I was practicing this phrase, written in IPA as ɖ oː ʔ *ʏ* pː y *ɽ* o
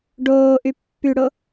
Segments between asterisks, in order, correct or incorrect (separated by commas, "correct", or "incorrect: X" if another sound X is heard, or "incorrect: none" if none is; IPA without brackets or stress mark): incorrect: y, correct